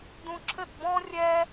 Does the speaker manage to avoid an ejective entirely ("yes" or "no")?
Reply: yes